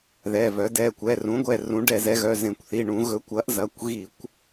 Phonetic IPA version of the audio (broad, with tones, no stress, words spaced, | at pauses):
ðɛ˩˧˩vœ˩˥ dɛ˩˧˩ kʷɛ˩˧˩rũ˩˥ɡʷɛ˩˧˩ rũ˩˥ɖɛ˧˩˧zɛ˩˥ɣœ˩˧˩ zẽ˧˩˧kʷθi˩˧˩ ɳũ˧˩˧ ɣɵ˩˥kʷɐ˩˥ʔzɐ˩˧˩kʷɣi˧˩˧kʷ